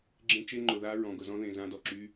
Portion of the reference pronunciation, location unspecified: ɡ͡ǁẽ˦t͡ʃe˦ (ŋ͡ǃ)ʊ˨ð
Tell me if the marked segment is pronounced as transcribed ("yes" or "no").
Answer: yes